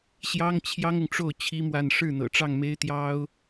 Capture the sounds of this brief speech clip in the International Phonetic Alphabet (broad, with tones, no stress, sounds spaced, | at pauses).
ɕ j ɑ˥ ŋ t͡ɕʰ j ɑ˥ ŋ ʊ˨ ŋ ʈ͡ʂ o˥˩ ʊ̯ t͡ɕʰ i˥ m w a˥˧ n ʂ ɻ̩˥˩ n̪ ɤ̰˨˩ ʈ͡ʂ ɑ˥˩ ŋ m e˥ ɪ̯ t̪ j ɑ˥ ʊ̯